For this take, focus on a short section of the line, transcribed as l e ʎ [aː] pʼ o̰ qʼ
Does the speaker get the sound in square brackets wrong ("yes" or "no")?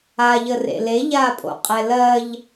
no